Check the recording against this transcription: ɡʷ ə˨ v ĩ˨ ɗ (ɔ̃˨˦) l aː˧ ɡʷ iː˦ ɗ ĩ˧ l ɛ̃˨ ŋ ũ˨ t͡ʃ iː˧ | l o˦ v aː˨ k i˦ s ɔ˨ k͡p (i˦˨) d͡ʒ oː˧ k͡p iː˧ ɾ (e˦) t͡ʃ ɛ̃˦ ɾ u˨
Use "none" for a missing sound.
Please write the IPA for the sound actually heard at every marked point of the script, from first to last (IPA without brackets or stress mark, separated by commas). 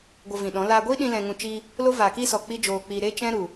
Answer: ɔ̃˨˦, i˦, e˦